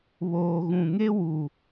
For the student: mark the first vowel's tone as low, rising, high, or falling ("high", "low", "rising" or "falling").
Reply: low